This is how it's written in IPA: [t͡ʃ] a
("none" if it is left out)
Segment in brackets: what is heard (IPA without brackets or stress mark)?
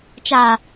t͡ʃ